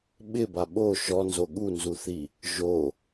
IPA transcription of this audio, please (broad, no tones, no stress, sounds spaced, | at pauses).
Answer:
ɓ ɪ b a ɓ o ʃ ɔ n z o ɠ u n z u θ i | ʒ o